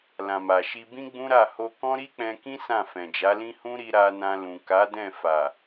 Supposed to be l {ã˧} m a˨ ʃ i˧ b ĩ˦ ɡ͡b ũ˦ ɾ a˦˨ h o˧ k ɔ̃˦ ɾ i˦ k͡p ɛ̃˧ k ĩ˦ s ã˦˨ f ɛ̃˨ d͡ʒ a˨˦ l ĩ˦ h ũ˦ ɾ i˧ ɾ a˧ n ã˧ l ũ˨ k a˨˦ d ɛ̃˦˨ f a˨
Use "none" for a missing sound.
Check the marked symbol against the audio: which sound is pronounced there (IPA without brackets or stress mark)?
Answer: ã˨